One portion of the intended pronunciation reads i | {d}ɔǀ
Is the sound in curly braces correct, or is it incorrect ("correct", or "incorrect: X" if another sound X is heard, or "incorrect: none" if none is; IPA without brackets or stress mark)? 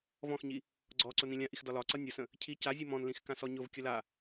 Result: incorrect: ɡ͡ǀ